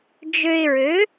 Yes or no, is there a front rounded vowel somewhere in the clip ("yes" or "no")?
yes